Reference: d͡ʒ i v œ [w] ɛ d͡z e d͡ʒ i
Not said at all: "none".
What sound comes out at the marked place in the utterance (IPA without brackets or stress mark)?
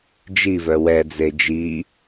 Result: w